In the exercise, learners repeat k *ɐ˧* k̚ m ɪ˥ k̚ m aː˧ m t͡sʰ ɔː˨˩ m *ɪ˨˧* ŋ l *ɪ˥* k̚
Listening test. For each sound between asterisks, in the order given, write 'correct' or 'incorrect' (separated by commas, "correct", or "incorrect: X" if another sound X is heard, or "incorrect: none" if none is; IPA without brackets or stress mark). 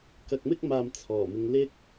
correct, correct, correct